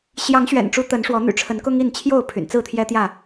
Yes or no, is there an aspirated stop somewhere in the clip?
yes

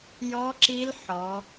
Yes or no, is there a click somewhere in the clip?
yes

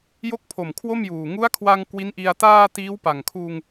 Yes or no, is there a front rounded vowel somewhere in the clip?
no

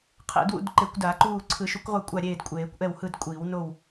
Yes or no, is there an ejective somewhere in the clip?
yes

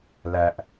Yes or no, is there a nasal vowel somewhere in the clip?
no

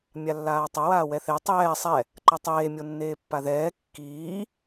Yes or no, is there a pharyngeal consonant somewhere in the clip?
no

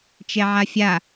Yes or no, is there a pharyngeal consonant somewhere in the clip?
yes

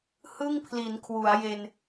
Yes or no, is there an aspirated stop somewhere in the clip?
yes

